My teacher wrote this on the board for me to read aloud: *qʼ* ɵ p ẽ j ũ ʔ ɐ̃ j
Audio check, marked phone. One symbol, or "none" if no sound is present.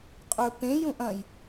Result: qʼ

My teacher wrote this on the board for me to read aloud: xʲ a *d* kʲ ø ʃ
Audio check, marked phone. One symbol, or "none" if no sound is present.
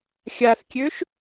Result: θ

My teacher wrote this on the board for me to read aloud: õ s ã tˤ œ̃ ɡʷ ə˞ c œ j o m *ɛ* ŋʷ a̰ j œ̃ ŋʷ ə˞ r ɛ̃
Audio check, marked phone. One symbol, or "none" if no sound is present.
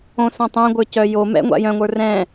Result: ɛ̰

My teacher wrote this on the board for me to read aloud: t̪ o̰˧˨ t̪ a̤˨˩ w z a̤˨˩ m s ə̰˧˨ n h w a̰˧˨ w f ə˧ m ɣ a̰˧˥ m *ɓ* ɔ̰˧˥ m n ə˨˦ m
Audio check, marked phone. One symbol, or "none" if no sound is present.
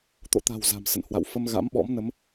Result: ɓ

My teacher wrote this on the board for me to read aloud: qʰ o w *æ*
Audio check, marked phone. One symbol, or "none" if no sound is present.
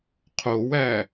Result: æ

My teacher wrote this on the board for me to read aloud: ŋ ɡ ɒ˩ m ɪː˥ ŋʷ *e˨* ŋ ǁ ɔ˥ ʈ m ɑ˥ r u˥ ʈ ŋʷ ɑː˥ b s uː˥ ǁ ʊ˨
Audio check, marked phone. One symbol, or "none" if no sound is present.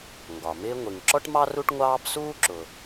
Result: i˨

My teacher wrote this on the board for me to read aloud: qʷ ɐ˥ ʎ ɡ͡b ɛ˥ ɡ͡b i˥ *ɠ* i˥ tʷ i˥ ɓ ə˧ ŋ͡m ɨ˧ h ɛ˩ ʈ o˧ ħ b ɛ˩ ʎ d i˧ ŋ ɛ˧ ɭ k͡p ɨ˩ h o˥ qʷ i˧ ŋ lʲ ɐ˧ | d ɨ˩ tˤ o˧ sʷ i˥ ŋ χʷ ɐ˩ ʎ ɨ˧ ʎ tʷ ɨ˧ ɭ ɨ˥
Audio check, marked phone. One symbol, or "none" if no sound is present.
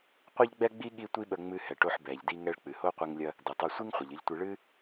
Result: ɠ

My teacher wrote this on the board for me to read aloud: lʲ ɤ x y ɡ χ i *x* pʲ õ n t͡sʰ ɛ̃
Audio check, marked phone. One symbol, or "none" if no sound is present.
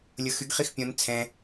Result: x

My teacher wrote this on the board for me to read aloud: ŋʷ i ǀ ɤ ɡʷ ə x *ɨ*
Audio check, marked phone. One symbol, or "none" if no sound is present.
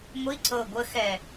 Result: ɛ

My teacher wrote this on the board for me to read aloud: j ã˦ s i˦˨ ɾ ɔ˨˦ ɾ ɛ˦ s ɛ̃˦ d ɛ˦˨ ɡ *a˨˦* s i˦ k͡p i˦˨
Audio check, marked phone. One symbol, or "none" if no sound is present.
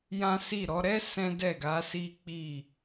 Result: a˨˦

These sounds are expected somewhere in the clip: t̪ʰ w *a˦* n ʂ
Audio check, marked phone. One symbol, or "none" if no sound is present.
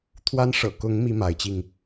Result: a˦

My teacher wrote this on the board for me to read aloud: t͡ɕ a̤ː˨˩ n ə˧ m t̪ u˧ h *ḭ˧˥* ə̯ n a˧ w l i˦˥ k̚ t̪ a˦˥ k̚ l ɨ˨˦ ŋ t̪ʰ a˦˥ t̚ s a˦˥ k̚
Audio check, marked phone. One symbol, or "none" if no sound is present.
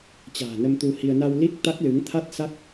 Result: i˧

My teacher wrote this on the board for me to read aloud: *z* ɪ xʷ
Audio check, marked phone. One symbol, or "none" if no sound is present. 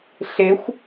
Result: ɬ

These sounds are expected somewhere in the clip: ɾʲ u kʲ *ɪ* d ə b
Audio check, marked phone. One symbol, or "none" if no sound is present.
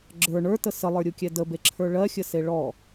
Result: ɛ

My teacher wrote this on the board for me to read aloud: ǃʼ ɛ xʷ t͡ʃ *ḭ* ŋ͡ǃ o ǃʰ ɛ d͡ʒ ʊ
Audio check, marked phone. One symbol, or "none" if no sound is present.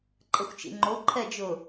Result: ḭ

